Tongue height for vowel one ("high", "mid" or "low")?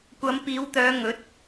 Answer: low